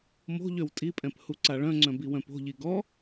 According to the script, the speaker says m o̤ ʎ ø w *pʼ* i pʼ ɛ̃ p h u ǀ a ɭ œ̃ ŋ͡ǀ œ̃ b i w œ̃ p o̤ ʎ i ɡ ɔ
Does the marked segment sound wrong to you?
yes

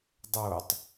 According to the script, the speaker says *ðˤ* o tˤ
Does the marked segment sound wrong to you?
yes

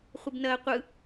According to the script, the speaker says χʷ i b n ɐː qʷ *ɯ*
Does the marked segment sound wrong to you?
no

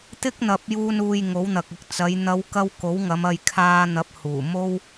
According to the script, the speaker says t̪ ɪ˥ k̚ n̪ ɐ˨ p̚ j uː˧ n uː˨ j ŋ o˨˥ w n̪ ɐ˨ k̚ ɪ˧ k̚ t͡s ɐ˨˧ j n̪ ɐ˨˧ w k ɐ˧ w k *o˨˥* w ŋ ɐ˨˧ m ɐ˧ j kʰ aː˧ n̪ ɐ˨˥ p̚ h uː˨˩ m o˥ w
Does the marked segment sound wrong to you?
no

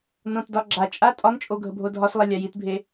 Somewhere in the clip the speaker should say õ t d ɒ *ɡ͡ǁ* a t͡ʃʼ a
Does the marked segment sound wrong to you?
no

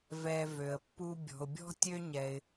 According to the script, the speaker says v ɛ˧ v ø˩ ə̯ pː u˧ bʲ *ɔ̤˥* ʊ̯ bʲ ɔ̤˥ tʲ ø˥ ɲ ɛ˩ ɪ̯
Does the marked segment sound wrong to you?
yes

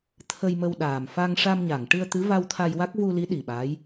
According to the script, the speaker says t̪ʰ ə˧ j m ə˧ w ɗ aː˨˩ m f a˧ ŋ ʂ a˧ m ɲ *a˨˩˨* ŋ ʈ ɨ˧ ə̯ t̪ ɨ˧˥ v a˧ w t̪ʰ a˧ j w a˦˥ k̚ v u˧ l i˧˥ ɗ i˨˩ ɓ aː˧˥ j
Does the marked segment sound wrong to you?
no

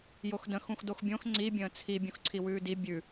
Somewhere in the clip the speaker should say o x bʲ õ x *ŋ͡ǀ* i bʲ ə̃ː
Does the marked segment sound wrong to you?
no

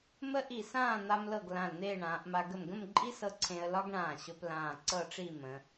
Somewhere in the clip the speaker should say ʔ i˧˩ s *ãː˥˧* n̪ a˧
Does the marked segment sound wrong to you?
no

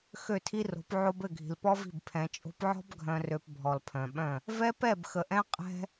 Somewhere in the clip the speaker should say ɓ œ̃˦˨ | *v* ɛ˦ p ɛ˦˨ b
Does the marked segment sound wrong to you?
no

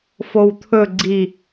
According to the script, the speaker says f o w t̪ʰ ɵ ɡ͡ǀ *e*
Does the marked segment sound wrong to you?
yes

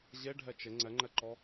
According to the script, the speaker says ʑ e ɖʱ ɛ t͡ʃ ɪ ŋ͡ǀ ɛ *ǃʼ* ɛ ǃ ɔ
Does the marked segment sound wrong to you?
yes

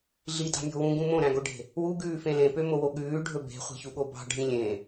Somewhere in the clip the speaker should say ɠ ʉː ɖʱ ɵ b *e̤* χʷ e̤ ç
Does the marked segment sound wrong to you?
no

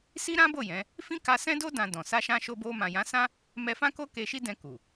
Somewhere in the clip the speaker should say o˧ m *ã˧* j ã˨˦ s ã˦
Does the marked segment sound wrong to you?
yes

